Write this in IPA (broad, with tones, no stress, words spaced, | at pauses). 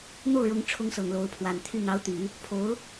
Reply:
n̪o˥˩ʊ̯ɻʊ˧˥ŋʈ͡ʂʰʊ˧˥ŋ sɤ˨˩ŋlo˧˥ʊ̯pʰwa˨˩nt̪ʰy˥˩ n̪ɑ˧˥ʊ̯t̪y˨˩˦ | pʰo˧˥ʊ̯